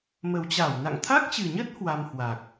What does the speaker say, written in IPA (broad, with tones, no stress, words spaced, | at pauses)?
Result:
mə˨˩wt͡ɕa˧˩wna̰˧˨ŋ t̪ʰa˦˥k̚t͡ɕɨ˨˩ɲə˦˥t̚ hwa˧mhwa˨˩k̚